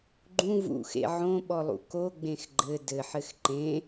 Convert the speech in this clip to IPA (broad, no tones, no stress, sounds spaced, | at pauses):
ɡ͡ǃ ũ v ṵ x ḛ ʕ õ ɓ ɔ lˠ ṵ k o ɡ͡b ẽ x ɡ͡ǃ ɘ d ɘ ħ ɘ x ǃ ẽ